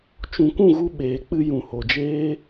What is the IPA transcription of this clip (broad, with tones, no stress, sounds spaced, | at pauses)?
t͡ʃ ũ˨ kʷ ũ˦˨ ɣ u˧ ɓ eː˨ k͡p ɨ˧ j ũ˨ h o˨ d͡ʒ eː˦